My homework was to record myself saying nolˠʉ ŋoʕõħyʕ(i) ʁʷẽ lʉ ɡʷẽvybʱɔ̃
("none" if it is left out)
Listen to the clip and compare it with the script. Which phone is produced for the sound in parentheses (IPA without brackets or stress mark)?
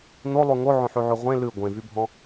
y